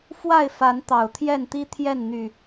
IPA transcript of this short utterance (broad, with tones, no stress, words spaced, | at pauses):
fwa˥˨ɪ̯fa˨˦n t̪ɑ˨˩ʊ̯t̪ʰjɛ˥˨nt̪i˦ t̪ʰjɛ˥˨n n̪y˨˩